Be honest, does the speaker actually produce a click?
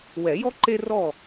yes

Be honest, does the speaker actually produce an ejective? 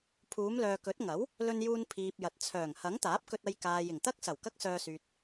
no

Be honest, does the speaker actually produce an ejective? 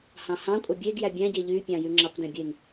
yes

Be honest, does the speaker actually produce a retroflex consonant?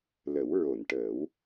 yes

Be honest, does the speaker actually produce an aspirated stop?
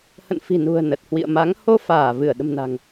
no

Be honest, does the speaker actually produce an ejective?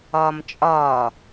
yes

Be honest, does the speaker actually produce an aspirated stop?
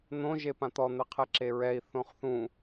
yes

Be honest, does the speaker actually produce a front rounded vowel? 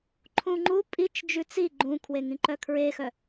yes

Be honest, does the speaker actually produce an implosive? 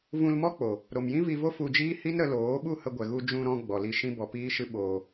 yes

